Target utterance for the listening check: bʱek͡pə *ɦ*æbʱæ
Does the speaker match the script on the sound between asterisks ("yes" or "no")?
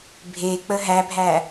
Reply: yes